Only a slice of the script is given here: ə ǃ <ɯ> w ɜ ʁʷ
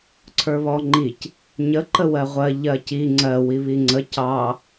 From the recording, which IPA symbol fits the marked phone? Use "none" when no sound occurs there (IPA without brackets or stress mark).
ə